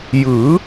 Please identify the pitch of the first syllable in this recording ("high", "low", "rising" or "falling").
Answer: rising